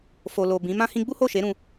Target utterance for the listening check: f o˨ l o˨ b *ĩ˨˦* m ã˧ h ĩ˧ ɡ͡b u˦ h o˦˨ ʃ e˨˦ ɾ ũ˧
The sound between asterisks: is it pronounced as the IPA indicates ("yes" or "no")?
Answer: yes